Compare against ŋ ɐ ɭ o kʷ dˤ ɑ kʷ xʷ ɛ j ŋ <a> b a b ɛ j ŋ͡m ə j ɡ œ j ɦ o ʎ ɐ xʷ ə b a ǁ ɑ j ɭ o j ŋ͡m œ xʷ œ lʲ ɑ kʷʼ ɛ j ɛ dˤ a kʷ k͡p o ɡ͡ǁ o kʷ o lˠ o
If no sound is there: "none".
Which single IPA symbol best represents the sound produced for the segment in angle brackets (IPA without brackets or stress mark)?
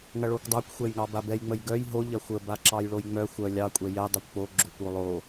ɑ